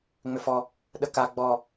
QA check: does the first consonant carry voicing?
yes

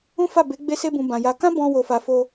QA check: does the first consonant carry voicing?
no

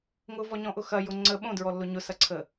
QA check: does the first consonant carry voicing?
yes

